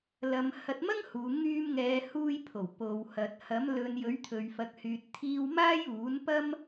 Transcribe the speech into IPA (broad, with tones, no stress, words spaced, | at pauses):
lɐ˨˧m hɐ˧t̚mɐ˥ŋhuː˨˧ ŋyː˧mŋɛː˨˧huː˧jpʰo˨˩w po˨whɐ˨t̚ hɐ˨˥mlɵ˨˧njɵ˨˥ɥ t̪ʰɵ˨ɥfɐ˨k̚hyː˨t̚t̪ʰiː˧w maː˥juː˨˥npɐ˥m